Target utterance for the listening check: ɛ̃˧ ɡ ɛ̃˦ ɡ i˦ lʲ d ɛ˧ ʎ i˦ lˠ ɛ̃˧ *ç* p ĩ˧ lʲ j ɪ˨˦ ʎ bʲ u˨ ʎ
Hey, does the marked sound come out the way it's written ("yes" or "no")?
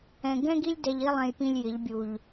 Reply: no